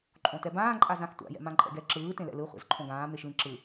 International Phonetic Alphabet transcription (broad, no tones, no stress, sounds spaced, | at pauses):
ǃʼ õ t ɛ b ãː ǃʼ a z ã x tʷ a̰ j ɛ̰ m ã ǃʼ ɛ̰ ɡ ɛ ǁ ɯː t ẽ l ɛ̰ l ɯ χʷ ɛ̰ z ǃʰ õ ɡ ãː m e ʃ l ĩ ǁ ɯ